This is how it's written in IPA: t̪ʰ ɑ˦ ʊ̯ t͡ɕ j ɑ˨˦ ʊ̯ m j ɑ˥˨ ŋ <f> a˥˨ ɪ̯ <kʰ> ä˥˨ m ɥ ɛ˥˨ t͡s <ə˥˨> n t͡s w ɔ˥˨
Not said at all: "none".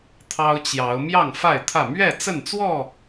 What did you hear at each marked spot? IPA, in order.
f, t̪ʰ, ə˥˨

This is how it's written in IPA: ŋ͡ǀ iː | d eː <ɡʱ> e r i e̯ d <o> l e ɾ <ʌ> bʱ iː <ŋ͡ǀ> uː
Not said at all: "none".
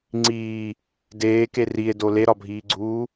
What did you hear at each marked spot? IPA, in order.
k, o, ɒ, ɡ͡ǀ

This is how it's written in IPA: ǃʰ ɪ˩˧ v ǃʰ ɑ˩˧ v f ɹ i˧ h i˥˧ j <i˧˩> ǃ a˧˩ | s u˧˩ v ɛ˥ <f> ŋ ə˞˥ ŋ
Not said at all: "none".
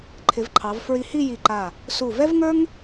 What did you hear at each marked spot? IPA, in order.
i˧˩, v

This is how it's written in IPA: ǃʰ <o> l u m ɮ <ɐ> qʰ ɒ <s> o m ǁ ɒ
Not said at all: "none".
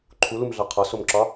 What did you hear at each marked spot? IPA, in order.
u, ɑ, s

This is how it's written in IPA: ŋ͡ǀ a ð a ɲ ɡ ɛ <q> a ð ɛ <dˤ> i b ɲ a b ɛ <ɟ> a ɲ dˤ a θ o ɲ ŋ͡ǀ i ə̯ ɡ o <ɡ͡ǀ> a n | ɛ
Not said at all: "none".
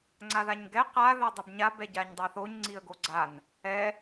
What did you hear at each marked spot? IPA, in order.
q, dˤ, ɟ, ɡ͡ǀ

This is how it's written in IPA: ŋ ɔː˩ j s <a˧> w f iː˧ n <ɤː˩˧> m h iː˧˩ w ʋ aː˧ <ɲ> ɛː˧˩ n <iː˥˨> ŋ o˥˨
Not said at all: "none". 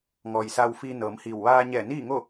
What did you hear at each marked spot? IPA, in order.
a˧, ɤː˩˧, ɲ, iː˥˨

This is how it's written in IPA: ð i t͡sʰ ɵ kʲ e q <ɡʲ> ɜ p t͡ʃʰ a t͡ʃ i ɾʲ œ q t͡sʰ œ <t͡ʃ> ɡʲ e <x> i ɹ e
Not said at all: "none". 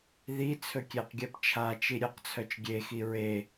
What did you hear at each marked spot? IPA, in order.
ɡʲ, t͡ʃ, x

